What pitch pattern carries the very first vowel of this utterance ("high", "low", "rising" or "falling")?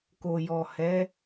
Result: low